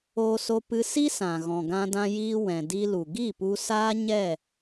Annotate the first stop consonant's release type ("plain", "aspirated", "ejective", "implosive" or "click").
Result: plain